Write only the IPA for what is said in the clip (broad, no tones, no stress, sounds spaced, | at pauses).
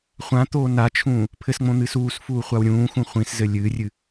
χʷ ã t̪ oː n a t͡ʃʰ ũː | pʰ ɘ s ŋ͡m õ n̪ ɨː s uː s f uː χʷ a w ɾʲ ũː x ũ χʷ ĩ s z ɘ lʲ ɨː rʲ ɨ